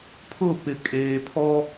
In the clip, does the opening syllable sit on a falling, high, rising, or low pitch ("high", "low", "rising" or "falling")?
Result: falling